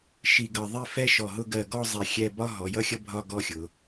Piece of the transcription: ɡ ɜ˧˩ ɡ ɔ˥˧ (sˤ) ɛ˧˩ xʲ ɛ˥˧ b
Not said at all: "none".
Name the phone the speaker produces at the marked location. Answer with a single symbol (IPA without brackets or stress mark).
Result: zˤ